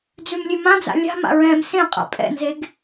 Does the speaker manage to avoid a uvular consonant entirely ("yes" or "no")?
no